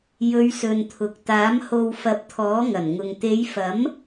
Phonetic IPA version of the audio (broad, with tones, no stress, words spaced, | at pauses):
jɵ˨˧ɥsɵ˨nt̪ʰʊ˨k̚ t̪aː˨˥mho˧w fɐ˨˥p̚t̪ʰɔː˨˥ŋɐ˨˩nŋʊ˨ŋ t̪e˨˧jfɐ˨˥m